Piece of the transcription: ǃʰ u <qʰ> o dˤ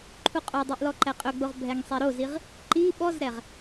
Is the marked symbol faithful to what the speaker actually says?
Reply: no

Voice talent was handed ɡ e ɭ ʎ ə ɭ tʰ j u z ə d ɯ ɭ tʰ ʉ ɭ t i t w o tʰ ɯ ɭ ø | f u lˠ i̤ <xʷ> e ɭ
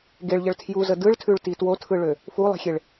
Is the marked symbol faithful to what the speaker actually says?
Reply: no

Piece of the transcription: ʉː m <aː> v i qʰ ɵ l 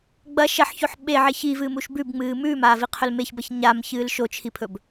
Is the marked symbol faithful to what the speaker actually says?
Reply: yes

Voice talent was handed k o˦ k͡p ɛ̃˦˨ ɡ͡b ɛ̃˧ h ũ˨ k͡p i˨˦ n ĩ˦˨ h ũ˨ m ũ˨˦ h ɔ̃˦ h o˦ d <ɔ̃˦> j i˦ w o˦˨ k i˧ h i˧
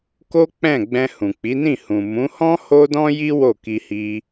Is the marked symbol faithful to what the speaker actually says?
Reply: yes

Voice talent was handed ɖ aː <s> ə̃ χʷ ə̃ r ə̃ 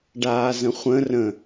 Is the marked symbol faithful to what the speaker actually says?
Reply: no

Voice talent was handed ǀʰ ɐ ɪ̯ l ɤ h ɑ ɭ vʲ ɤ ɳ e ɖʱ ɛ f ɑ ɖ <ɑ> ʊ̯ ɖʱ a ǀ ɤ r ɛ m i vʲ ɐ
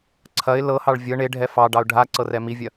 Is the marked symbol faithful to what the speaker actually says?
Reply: yes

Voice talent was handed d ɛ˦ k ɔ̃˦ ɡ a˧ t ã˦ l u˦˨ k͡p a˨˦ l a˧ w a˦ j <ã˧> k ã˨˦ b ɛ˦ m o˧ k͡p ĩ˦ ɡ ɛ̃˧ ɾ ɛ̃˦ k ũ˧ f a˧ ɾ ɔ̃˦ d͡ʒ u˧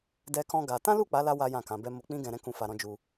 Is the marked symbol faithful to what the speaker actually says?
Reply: no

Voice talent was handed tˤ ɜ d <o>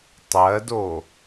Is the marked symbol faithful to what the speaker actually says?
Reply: yes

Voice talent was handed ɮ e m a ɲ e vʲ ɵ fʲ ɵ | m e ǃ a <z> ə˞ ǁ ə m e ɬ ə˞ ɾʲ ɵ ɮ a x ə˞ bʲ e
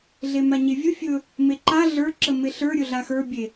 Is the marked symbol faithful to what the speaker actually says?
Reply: no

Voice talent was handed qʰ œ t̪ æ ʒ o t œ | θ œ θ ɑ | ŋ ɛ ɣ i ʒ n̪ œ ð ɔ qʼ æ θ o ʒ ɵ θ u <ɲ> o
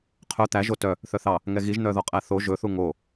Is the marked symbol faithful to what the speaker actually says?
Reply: no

